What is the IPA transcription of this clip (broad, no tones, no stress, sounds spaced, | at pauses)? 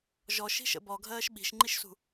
ʒ ɔ ʃ i̤ ʃ ə̰ b ɔ ɡʱ ɜː ʃ ɓ i̤ ʃ ŋ͡ǃ i ʃ s ṳ